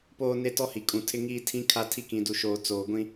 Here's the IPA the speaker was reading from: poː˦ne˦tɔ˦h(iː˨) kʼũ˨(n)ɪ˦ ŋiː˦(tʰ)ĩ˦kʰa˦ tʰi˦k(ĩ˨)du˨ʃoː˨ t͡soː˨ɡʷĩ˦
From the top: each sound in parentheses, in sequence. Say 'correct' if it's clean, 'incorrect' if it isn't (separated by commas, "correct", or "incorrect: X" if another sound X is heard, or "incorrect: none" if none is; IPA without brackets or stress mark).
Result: incorrect: i˨, incorrect: tʰ, correct, correct